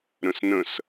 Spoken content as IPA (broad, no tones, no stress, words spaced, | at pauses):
ɾə̃snə̃s